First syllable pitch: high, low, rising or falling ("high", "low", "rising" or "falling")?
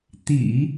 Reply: low